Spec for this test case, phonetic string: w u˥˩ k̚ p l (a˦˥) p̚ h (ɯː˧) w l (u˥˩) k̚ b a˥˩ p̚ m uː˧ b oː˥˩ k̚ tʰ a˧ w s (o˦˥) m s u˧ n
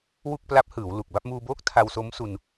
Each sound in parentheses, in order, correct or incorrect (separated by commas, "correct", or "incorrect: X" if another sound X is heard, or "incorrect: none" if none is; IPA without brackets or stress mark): correct, incorrect: ɯː˩˦, incorrect: u˨˩, correct